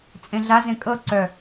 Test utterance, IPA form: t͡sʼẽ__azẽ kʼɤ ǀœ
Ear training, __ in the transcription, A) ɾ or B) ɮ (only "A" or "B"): B